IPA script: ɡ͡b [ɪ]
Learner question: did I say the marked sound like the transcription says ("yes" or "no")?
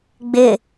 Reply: yes